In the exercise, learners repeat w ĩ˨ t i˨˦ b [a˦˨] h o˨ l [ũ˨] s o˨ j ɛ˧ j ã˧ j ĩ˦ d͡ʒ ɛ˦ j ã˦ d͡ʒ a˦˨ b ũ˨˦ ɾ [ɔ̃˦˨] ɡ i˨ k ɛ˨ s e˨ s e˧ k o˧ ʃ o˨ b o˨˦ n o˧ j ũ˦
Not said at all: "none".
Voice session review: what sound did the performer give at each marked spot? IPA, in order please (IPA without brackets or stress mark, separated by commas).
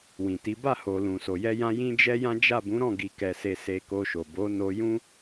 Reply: a˦˨, ũ˨, ɔ̃˦˨